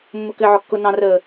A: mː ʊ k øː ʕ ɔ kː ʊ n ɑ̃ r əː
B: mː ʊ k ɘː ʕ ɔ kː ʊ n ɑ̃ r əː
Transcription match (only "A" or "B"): B